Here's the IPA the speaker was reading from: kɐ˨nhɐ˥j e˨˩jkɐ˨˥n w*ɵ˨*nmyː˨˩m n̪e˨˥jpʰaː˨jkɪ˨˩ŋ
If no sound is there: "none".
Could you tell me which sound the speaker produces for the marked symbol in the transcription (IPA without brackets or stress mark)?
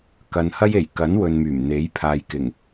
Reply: ɵ˨